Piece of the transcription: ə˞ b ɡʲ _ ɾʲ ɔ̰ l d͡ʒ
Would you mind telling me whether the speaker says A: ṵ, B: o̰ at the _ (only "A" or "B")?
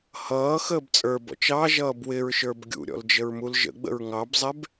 A